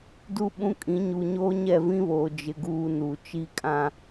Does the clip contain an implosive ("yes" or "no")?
yes